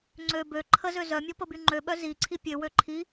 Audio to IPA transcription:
ŋ͡ǀø bø ǃʰəzø zœmʲɔpəby ŋ͡ǃøɓœ ziǀʰi pʲøwø ǃʰi

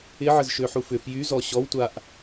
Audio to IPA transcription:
ɪʕəz ʃøħufʏ fjy zɔɕɔwtʷaʔ

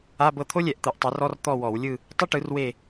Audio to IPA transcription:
a˧˥˧bɤ˦˨ t̪ʰo˥lʲɛ˧˩˧ʔ t̪ɯ˧˩˧ʔtˤɤ˩˥rɔ˧˥˧r t̪ɔ˦˨wɔ˧˩˧wlʲɯ˦˨ | tˤɯ˥ʈɯ˩˥rwe˦˨

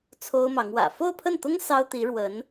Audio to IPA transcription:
t͡sʰo˥ʊ̯mɑ˧˥ŋwä̰˨˩ fo˥˧ʊ̯pʰə˥˩nt̪ʊ˥ŋ sɑ˥ʊ̯t̪i˧˥ ɻwə˧˥n

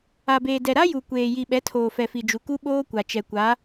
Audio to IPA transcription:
a˨beː˨ dɛ˨ɾa˦ju˨ kʷeː˨ji˨ɓɛ˨˦tʰoː˨ fɛ˨fi˨d͡ʒu˨ ku˦ɓoː˦kʷa˨ t͡ʃɛ˨kʷa˨˦

